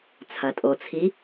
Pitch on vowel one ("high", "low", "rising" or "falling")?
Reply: low